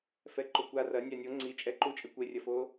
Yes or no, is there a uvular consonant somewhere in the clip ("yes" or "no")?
no